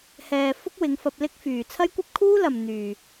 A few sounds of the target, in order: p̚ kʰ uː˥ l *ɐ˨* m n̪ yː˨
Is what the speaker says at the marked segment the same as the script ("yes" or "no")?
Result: yes